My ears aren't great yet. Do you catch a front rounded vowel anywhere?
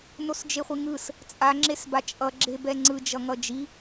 no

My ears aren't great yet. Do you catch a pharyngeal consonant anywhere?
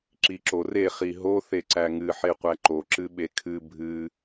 yes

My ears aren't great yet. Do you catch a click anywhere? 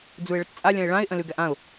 no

